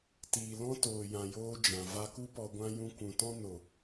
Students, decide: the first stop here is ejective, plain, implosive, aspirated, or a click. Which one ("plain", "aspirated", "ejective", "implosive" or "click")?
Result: plain